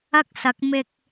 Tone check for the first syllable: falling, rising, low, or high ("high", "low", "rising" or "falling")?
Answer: high